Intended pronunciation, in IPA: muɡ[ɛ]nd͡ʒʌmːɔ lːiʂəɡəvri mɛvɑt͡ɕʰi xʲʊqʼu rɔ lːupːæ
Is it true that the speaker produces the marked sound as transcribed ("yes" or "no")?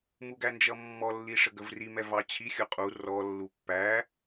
no